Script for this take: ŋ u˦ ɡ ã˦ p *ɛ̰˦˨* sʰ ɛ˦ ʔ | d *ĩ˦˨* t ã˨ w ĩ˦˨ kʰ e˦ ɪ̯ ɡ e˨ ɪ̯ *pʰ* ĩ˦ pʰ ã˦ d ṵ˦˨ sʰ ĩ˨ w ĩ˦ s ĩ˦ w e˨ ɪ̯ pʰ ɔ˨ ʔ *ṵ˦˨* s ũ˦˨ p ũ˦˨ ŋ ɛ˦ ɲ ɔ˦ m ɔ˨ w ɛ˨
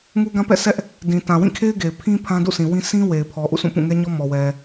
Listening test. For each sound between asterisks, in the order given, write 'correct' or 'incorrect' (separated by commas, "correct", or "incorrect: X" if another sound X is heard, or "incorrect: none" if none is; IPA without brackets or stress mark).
correct, incorrect: ĩ˨, correct, correct